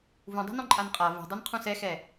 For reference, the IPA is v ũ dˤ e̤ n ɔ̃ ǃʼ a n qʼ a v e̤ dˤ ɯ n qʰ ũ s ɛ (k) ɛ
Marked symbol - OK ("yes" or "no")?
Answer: no